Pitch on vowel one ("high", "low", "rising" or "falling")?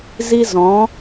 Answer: high